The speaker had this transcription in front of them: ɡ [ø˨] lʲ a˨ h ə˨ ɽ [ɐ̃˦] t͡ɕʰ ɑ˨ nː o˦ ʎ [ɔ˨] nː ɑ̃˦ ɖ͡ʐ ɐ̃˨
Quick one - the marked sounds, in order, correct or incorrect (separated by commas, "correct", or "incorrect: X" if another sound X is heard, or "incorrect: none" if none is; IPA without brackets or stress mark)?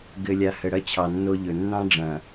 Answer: incorrect: ɘ˨, incorrect: ɐ˦, incorrect: ɵ˨